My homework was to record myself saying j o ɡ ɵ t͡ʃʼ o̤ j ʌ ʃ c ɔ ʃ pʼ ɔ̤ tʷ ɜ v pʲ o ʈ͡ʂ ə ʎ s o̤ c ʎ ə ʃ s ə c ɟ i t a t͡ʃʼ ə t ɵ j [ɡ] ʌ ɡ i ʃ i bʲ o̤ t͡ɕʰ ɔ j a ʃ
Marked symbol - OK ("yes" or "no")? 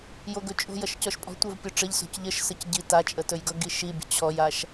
yes